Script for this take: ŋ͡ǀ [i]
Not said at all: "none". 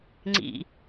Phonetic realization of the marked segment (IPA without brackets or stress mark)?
ḭ